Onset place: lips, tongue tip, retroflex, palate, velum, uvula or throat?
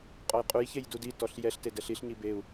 uvula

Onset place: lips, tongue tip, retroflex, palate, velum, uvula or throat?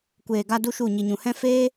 velum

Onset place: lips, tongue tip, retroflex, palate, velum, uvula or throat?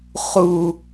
uvula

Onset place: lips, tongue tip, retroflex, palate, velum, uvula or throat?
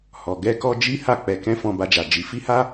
throat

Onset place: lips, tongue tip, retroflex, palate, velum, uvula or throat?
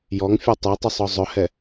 palate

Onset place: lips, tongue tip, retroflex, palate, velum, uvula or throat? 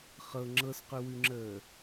uvula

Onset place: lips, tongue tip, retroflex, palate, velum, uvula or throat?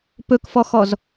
lips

